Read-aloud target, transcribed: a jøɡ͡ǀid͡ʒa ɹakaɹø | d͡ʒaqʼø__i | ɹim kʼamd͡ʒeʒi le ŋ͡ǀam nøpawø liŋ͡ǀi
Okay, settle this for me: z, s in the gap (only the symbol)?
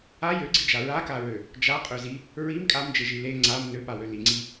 z